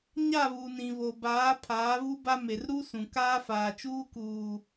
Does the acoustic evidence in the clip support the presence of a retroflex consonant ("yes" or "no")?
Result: no